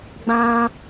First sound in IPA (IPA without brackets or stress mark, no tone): ɡ͡b